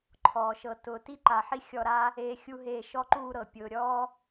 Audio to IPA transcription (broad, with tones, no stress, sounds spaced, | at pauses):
ǃʰ ɔː˩ ʃ ɤ˨ t ʊː˨ t i˥ ǃ a˨ ħ i˥ xʲ ɔ˦ ɾ aː˥ | eː˦ xʲ u˥ ɦ eː˦ ʃ ɔ˦ ǃ uː˦ ɾ ɤ˩ pʲ ʊː˨ ɾʲ ɔː˥